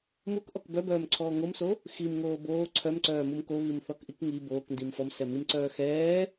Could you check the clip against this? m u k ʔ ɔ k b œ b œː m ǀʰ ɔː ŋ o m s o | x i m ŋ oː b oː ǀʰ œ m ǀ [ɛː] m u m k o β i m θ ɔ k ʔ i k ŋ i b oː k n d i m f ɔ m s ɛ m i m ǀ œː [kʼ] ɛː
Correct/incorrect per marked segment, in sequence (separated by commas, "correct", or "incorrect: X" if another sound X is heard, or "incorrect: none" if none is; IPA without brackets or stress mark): incorrect: œː, incorrect: x